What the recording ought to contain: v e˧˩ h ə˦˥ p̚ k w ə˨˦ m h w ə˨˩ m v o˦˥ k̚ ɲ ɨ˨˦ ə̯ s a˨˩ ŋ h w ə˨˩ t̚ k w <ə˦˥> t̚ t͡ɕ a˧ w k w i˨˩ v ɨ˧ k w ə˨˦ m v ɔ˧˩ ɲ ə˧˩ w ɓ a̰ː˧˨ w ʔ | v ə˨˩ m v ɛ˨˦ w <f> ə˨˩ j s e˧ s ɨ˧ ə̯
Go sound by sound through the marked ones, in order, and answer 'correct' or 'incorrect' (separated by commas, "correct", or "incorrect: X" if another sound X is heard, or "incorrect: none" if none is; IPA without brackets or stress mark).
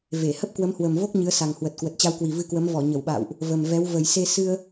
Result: incorrect: ə˨˩, incorrect: v